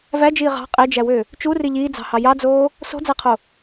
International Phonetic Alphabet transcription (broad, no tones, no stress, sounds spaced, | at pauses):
v æ d͡ʒ iː ʁ ɑ̤ qʼ e d͡ʒ æ w ø | t͡ʃ u r i ʎ iː d͡z ɑ̤ h ɑ j ɑ d͡z oː | s o̤ d͡z æ qʰ o